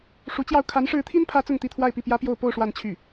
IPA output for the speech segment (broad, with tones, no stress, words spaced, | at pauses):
ʂu˧˥t͡ɕjɑ˥˩ʊ̯ kʰa˧˥nʂɻ̩˧˥t̪ʰi˥npʰä˧˥ t͡sʊ˥˧ŋt̪i˥˧t̪ʰwa˥˧ɪ̯pi˥˩ pjä˥pjo˥˧ʊ̯ po˥˧ʊ̯ ʂwa˥˧nt͡ɕʰy˥˩